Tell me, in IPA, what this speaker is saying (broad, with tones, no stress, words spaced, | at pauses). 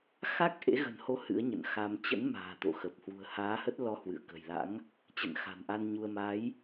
xa˦˥k̚ʔḛ˧˥ɣə̤˨˩nho˨˦ hɨ̰˧˥ə̯ɲə̰˧˨nxa˧m t͡ɕə̰˧˥nma̤ː˨˩t̪o̰˧˨xə˨˩p̚ hwṳ˨˩ə̯haː˨˦hə˦˥t̚ lɔ˧hwɨ̰˧˨ə̯kə̤˨˩jla̰˧˥ŋ | t͡ɕə̰˧˨nxa̤˨˩nʔa˧n ɲu˧ə̯ ma˨˦j